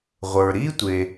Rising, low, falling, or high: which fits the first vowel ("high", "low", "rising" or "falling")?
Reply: low